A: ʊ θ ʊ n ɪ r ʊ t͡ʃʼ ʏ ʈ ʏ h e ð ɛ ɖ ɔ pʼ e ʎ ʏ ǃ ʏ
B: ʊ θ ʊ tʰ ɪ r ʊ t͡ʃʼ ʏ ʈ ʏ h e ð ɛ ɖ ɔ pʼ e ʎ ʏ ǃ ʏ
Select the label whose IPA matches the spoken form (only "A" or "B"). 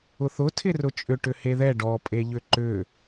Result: B